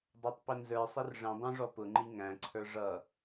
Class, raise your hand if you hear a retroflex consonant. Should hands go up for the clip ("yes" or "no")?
yes